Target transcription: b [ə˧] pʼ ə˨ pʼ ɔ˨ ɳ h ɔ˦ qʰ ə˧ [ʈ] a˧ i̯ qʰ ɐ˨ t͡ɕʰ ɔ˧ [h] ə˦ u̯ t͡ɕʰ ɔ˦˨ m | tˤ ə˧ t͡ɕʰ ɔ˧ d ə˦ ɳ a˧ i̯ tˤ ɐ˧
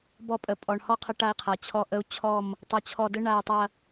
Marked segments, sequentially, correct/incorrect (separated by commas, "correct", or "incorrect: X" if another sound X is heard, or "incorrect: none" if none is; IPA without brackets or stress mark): incorrect: ɔ˧, correct, incorrect: ʔ